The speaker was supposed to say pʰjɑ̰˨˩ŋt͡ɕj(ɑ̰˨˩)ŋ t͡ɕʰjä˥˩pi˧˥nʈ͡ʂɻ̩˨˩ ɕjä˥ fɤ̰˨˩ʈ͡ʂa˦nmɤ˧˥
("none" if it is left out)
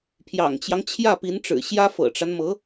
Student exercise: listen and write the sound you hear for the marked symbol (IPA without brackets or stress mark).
ɑ˦